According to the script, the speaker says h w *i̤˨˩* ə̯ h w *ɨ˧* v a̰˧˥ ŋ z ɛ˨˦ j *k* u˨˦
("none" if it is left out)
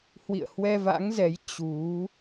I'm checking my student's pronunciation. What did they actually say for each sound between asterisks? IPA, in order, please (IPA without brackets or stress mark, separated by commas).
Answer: ḭ˧˨, ɛ˧, t͡ɕ